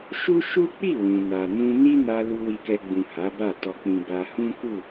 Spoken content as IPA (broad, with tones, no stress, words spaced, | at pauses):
ʃu˦ʃu˦k͡pi˦˨ wũ˨na˨ nũ˧ni˦ na˧ lu˧wi˧kɛ˧ɡ͡bũ˨ ha˨˦ba˦˨ tɔ˨k͡pĩ˨ ba˧hũ˦ku˦˨